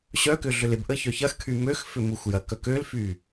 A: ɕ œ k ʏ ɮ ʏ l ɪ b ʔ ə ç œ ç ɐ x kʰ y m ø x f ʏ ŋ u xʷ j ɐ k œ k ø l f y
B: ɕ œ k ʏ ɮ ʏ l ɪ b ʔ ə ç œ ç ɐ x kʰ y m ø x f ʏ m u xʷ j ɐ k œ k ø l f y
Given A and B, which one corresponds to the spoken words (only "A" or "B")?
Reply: B